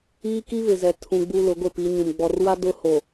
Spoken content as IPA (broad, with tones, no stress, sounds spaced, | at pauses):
iː˦ k i˦ β ɪ˨ z ɛ˨ tʰ ũ˨ ɡ͡b u˨ l ʊ˨˦ ɡʷ ɪ˦˨ p i˨˦ ɲ ũ˨ m ɡ͡b ɔ˨ r w a˦ d ʊ˦ h o˨